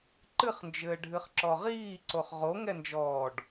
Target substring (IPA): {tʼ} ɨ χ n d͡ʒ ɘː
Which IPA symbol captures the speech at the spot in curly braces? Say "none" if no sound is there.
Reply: ǃ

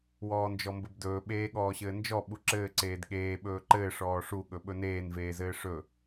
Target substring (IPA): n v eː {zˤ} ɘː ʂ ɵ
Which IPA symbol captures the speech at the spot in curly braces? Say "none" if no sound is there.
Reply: z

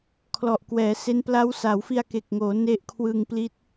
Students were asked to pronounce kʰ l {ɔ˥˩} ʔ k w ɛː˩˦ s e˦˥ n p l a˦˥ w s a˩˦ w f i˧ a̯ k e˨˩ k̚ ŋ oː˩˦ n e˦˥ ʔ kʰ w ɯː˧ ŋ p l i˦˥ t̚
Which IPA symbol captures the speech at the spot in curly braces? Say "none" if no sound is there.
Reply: ɔ˨˩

